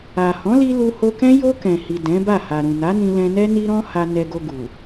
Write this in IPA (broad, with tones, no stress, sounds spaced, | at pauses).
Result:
a˨ h ɔ̃˨˦ l i˧ l u˧ h o˧ k ɛ̃˦ j o˧ k ɛ̃˨ h i˨ d ɛ̃˨˦ b a˦˨ h a˨ ɾ ũ˨ n a˨˦ n ĩ˧ l ɛ̃˧ n ɛ˦ n i˦ ɾ ɔ̃˦ h a˧ n ɛ˧ ɡ o˧ ɡ u˨